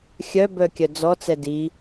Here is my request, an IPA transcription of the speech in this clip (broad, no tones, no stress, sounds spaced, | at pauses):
xʲ œ b œ kʲ œ d͡z ɔ t͡s ɛ d i